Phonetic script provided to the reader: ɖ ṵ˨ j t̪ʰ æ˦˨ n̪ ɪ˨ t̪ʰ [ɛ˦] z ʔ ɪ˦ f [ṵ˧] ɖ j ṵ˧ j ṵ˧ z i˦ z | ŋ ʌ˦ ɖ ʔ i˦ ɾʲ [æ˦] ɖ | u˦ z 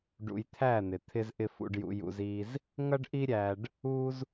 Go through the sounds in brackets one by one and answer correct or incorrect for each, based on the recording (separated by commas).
incorrect, correct, incorrect